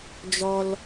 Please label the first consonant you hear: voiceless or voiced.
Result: voiced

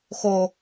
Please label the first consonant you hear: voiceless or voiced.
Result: voiceless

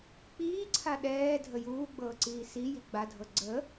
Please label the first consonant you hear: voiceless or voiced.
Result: voiceless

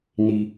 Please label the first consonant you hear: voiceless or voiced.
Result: voiced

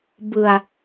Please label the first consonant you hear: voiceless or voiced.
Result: voiced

